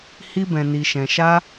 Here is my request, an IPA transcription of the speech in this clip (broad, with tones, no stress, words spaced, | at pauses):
hi˦bɛ̃˧ni˧ ʃɛ̃˧ʃa˦